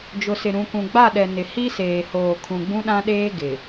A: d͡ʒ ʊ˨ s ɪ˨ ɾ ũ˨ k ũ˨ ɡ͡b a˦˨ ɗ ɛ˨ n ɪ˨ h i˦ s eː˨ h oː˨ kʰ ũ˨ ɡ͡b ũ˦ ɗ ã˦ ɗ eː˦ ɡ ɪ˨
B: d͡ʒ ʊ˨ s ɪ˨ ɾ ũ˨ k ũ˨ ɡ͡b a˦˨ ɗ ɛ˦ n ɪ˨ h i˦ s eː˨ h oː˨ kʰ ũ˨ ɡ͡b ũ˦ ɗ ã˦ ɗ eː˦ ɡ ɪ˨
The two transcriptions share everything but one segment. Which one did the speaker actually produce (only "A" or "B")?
A